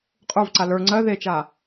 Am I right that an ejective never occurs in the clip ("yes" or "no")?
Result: no